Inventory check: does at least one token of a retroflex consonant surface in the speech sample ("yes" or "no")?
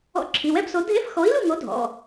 no